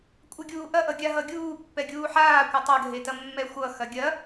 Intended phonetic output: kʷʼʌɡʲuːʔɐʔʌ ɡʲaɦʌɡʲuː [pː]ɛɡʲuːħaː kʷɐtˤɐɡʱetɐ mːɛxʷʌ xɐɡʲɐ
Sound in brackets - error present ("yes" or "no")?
no